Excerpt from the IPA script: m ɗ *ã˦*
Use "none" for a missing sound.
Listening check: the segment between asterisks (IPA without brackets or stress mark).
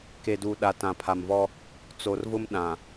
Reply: ã˨